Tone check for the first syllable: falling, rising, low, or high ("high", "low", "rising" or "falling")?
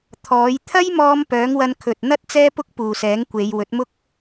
rising